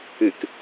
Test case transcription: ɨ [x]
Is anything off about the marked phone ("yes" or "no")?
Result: yes